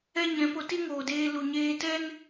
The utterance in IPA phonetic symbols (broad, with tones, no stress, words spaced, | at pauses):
ɛ˦ɲɛ̃˨˦ po˧ti˦ ŋoː˨deː˧ lu˨ɲeː˧tɛ˦n